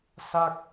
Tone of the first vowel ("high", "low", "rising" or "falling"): falling